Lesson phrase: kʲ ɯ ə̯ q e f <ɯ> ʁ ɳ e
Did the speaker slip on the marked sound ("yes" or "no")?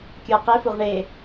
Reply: yes